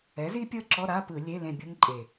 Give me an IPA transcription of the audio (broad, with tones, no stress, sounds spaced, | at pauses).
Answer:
ɛ˩˥ z i˦˥ pʲ ɤ˦˥ ǁ ɔ˧˥˧ ɾ a˧˥˧ p ɯ˧˩˧ lʲ e˧˥˧ l ẽ˦˨ bʲ ɤ˦˥ ŋ ǃʼ e˨˩